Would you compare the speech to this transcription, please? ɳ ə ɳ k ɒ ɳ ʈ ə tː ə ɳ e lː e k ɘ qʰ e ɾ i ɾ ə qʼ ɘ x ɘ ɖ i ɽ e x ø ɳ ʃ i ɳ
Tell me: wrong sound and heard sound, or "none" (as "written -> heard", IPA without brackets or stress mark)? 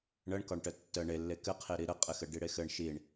ø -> ɘ